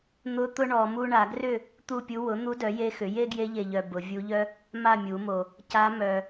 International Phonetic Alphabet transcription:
n̪ ʊ˧˥ t̪ ʊ˥ ɳ ɔ˨˩˦ m u˥ ɳ a˨˩˦ ɡ r ʏ˥˨ | t̪ u˥˨ pʲ u˧˥ w ʊ˩˥ n̪ u˧˥ d œ˩˥ j e˧˥ x ʏ˩˥ j e˥ ɡ j e˧˥ ʎ e˨ ʎ œ˨ b ʊ˨˩˦ vʲ u˧˥ ʎ œ˥ | m a˥˨ mʲ u˨˩˦ m o˨ | c a˧˥ m œ˨

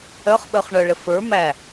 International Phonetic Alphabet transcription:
œ χ ɓ œ χ ɳ œ ɭ ɘ f ə˞ m æ

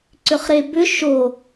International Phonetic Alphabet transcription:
ǀ ʏ χ ɾ e b ʏ ʃ o

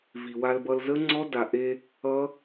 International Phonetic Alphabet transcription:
v i˩ w a˧ l b ʌ˧ l z ə˦˥ ŋ͡ǀ ɔ˦˥ d a˩ ʔ e˧ | ʌ˦˥

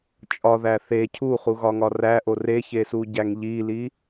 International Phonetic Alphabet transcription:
t͡ʃʼ ɒ ð æ θ e cʰ u χ u ɣ ɒ ŋ ɒ r æ ʔ o r e ç e s u ɟ æ ŋ ʎ i l i

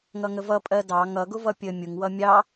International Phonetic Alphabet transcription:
ŋ ʌ ŋ ə v ʌ pʼ ɜ d ɑ ŋ ʌ ɡ ʊ v ʌ pʲ ə mʲ ʊ ŋ w ʌ mʲ ɑ

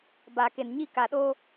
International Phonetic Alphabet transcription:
b a˨ k e˨ n ɲ i˦˨ k a˨ ɗ oː˦

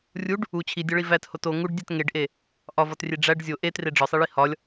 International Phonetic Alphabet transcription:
rʲ u ɖ | u t͡ɕʰ i dʲ ɒ ɭ i v æ t h o t o ŋ u ɖ dʲ æ t ŋ e ɖ ʔ e | ʔ ɒ v ɒ t rʲ e ɖ͡ʐ æ ɖ zʲ o ʔ e t r e ɖ͡ʐ ɒ sˤ i ɭ i h ɒ lʲ

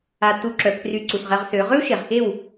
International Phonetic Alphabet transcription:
a˧ t u˧ ǁ œ˨ pʰ r y˧ ǀ u˨ s ʁ ɛ˧ ʁ s ø˨˦ ʁ ø˦ u̯ ʃ e˨ ʁ x e˦˨ w

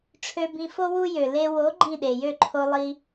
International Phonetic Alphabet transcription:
ʈ͡ʂʰ ø˧ b ĩ˧ f o˦ w u˦ j ø˨ l e˧ w o˨˦ ɡ͡ǃ ĩ˦˨ ɗ e˨ j ø˦˨ ǃʰ o˧ lˠ i˧

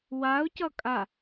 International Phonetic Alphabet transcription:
w a ʊ̯ c ʌ kʼ a

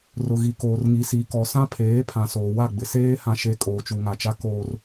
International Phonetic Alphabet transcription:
r ʊ˨ ɣ i˨ k oː˨ r ŋ i˨ s i˨ k ɔ˨ s ã˦ pʰ eː˨˦ pʰ ã˨ s oː˨ w a˦˨ ɡ͡b ɪ˨ s eː˦ h ã˦ ʃ e˦ kʼ oː˨ t͡ʃ u˨ ŋ a˨ t͡ʃ a˦ k oː˦ r

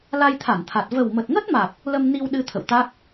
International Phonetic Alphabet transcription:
l a˧ j t̪ʰ a˧˩ n t̪ʰ a˨˩ t̚ v ə˨˩ w m ə˨˩ t̚ ŋ ə˦˥ t̚ m a˨˩ k̚ | l ə˧ m n i˧ w ɗ ɨ˧ t̪ʰ ə̰˧˨ w t̪ a˦˥ k̚

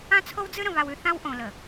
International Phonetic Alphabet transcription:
ã˦ t͡sʰ o˦ w d͡z ɨ˦ ɾ ə̃˨ β a˨ w ʉ˨ θ ã˦ w ʔ õ˨ l ə˨

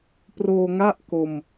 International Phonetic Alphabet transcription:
p r oː˧ ŋ a˥˩ ʔ k o˧ m

